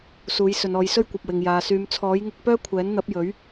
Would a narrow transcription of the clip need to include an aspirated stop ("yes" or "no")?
yes